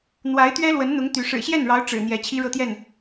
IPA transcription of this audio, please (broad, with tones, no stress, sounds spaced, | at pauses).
n̪ w a˧˥ ɪ̯ t̪ ɥ ɛ˥ l w ə˧˥ n n̪ ʊ˧˥ ŋ t̪ y˧˥ ʂ ɻ̩˨˩ ɕ j ɛ˥˩ n ɻ ɑ˧˥ ʊ̯ ʈ͡ʂ ɻ̩˨˩ n̪ j ɛ˧˥ t͡ɕʰ i˥ ɻ ɤ˥˧ t̪ j ɛ˥˩ n